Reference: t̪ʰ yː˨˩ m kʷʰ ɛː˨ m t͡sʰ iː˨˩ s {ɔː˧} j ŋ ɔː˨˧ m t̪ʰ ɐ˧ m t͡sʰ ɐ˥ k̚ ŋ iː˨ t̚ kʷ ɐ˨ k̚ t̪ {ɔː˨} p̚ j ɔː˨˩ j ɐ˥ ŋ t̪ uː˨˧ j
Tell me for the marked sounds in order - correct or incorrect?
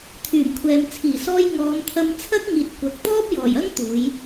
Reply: correct, incorrect

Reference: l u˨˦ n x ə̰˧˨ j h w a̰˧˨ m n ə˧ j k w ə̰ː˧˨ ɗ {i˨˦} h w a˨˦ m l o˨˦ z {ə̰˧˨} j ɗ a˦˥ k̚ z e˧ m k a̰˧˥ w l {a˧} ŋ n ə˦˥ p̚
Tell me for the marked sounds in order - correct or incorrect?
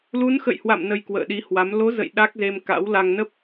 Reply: correct, correct, correct

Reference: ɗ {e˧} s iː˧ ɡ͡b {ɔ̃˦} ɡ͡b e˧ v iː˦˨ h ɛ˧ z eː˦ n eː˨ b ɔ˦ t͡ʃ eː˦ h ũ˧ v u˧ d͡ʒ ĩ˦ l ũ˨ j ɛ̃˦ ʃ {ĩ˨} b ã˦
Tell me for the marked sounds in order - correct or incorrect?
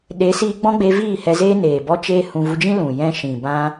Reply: incorrect, correct, correct

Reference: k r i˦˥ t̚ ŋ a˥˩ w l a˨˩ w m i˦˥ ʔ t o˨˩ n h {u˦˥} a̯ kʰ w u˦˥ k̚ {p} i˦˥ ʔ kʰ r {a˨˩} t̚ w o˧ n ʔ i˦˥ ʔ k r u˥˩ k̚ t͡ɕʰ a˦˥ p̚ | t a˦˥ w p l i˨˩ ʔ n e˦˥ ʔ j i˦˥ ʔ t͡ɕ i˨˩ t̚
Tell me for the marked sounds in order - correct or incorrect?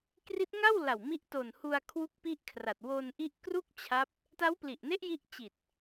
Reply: incorrect, correct, correct

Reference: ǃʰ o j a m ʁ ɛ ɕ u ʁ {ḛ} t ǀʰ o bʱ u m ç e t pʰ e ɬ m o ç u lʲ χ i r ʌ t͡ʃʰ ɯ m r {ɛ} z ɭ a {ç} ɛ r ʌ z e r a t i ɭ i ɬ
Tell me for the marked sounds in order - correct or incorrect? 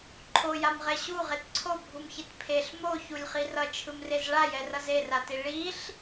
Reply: incorrect, incorrect, incorrect

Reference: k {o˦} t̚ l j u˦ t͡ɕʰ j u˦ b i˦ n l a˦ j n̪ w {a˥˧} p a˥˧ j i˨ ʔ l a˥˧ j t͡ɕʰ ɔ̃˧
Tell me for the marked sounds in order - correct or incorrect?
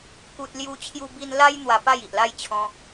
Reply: incorrect, incorrect

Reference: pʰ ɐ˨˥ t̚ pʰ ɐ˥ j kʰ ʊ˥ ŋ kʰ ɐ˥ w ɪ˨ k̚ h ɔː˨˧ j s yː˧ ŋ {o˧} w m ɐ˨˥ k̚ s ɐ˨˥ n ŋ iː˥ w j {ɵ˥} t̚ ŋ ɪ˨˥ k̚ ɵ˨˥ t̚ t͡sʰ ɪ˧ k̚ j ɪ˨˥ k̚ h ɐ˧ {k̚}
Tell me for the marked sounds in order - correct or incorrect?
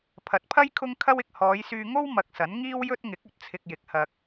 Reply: incorrect, correct, correct

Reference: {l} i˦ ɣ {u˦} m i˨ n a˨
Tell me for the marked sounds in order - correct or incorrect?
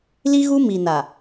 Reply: correct, correct

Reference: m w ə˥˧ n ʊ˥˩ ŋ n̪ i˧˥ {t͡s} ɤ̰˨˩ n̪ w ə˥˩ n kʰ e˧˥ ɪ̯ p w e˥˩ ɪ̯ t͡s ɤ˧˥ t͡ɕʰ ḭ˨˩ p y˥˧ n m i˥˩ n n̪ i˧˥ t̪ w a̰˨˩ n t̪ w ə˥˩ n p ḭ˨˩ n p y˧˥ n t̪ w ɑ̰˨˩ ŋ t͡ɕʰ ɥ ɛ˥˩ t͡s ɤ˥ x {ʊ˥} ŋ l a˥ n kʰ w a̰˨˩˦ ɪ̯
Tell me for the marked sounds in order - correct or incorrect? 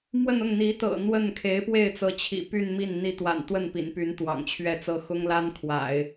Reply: incorrect, correct

